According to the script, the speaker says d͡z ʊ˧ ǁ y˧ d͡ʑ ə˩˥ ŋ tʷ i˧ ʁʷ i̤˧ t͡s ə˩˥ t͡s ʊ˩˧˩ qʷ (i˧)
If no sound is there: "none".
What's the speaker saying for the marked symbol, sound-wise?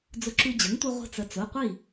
i˥˩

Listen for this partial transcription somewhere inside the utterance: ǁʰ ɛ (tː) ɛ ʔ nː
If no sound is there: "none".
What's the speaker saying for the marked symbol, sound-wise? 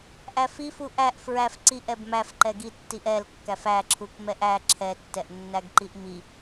tː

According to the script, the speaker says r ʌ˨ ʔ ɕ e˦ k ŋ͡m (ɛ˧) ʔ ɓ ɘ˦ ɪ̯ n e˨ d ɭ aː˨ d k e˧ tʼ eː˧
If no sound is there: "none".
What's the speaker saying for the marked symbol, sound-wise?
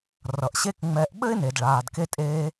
ɛ˧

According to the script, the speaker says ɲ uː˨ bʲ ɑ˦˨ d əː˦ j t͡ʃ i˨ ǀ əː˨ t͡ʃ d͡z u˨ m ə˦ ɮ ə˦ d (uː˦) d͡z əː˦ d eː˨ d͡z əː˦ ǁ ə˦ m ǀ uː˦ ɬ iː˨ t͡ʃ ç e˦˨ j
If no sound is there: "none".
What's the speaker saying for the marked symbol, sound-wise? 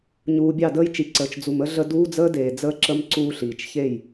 uː˦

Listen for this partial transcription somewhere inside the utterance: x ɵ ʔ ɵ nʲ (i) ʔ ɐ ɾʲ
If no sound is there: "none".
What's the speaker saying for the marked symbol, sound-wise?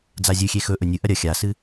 ɨ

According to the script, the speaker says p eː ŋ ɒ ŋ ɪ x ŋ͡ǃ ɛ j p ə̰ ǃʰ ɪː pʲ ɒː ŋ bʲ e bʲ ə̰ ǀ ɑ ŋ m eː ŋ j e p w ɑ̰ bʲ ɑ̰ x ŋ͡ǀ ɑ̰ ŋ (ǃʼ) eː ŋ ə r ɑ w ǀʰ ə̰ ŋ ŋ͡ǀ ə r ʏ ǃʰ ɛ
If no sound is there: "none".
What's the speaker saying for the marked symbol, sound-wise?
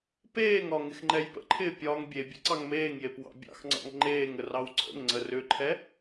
ŋ͡ǃ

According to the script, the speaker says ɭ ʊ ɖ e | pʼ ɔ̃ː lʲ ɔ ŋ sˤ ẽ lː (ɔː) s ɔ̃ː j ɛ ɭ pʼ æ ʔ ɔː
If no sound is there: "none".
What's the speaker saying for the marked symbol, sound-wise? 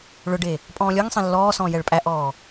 ɔː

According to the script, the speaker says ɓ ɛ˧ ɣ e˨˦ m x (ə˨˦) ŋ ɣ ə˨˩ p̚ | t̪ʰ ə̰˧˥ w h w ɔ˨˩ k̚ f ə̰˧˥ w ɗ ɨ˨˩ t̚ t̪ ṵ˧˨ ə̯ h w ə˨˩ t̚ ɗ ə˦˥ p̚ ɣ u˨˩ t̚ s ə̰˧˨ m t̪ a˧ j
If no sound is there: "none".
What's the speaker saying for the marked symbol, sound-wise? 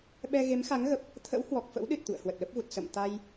a˨˦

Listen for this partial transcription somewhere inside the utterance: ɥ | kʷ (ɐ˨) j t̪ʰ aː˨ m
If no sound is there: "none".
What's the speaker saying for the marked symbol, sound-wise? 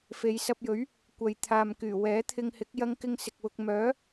ɐ˨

